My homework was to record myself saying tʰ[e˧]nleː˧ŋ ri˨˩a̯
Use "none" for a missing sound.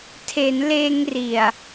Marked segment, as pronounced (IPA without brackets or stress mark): e˩˦